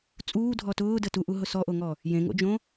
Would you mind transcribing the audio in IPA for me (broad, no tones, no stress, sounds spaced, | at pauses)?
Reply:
t͡sʼ uː dʱ ɔ t ʊː d ə t u ʔ u ɦ ʊ s ɔ ʔ o ŋ ɔ | j ẽ ŋ o̰ d͡ʒ õ